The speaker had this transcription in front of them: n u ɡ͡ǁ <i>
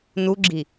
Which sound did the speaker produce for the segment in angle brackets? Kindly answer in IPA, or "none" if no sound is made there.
i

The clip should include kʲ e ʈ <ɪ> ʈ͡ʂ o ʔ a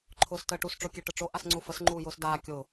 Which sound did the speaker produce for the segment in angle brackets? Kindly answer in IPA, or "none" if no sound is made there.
ə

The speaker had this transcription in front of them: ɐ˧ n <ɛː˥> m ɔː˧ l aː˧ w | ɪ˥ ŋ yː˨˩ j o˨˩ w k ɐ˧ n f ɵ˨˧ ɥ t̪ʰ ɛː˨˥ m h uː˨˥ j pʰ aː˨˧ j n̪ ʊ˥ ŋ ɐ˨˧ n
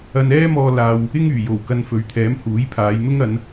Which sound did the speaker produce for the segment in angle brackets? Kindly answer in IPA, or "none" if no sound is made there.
ɛː˥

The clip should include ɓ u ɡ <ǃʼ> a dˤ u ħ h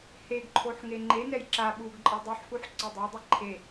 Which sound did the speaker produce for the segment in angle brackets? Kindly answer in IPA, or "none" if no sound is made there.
ǃʼ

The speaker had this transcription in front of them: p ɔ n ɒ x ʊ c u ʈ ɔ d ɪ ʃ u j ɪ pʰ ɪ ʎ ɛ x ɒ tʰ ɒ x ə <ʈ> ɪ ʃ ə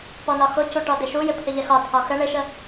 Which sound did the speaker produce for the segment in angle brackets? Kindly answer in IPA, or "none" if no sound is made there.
ɳ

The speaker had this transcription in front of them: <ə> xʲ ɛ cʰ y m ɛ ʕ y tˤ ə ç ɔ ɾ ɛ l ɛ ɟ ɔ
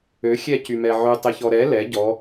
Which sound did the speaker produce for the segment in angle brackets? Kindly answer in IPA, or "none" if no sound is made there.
ø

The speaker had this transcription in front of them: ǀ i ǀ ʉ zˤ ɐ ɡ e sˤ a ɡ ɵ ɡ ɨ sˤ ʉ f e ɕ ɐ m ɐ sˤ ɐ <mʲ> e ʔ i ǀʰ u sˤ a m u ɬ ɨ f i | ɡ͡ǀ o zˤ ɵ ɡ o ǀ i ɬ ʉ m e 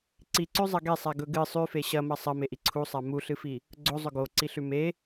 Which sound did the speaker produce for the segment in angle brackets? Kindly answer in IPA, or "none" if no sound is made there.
m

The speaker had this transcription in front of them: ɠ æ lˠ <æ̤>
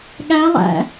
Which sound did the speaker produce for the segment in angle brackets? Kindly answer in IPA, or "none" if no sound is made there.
æ̰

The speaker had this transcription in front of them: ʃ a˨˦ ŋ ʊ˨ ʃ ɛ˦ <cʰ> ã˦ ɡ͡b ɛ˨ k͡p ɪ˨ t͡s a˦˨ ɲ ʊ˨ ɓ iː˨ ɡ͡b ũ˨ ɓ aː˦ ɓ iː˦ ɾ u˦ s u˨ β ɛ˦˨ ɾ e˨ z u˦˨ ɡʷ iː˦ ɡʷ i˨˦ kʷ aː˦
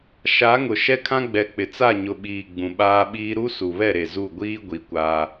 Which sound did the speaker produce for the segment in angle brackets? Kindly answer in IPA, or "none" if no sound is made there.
kʰ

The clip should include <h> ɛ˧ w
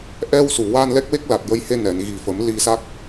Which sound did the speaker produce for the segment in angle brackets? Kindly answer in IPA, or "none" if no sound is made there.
ʔ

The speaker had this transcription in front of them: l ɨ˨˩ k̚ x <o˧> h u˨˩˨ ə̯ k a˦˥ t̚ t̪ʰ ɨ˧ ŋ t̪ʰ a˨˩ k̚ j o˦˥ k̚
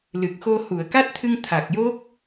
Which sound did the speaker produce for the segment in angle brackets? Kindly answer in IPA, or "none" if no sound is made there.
o˧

